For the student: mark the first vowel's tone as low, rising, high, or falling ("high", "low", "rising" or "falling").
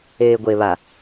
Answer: low